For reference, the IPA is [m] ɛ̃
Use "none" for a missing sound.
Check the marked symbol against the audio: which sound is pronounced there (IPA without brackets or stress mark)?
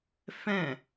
f